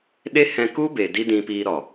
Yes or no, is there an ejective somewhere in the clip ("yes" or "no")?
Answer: no